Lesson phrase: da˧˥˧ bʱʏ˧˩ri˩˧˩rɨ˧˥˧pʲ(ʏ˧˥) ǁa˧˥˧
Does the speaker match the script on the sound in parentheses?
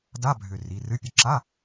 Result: no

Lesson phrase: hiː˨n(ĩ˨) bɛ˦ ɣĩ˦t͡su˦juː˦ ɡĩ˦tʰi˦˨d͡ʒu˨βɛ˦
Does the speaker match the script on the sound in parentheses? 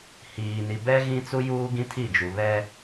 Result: no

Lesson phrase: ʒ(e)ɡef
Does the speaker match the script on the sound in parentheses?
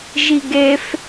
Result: no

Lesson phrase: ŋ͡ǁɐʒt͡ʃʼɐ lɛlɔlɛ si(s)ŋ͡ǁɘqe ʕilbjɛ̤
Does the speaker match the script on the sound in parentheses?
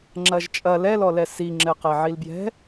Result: no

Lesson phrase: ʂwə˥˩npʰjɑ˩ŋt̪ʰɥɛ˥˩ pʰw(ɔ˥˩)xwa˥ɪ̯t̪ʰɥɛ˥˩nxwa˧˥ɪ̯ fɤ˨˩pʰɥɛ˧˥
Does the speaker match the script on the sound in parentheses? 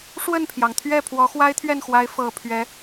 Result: no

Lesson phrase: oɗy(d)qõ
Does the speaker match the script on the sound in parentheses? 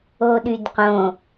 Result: yes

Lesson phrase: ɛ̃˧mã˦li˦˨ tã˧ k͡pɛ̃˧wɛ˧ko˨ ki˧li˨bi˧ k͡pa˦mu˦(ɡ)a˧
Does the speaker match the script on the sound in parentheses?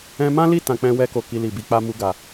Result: yes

